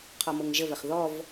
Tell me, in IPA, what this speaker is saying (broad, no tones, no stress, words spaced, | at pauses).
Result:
qʰɔmɤŋʒəvəχ ðɔv